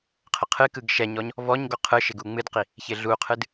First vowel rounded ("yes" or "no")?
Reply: no